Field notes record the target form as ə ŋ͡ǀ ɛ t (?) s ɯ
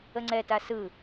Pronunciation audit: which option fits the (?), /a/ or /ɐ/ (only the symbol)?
a